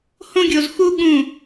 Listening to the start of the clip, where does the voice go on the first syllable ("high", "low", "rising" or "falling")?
high